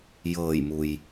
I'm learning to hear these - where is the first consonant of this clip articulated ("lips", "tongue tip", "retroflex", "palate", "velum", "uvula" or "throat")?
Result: palate